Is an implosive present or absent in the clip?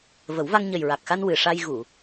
absent